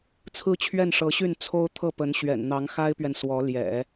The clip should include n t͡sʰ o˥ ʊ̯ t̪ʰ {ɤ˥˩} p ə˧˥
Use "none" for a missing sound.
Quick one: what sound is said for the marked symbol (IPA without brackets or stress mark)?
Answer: ɤ˥˩